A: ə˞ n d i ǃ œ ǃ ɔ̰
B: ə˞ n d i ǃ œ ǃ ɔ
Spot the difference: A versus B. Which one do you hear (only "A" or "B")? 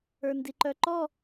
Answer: B